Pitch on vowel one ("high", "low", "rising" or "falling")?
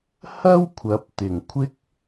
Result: high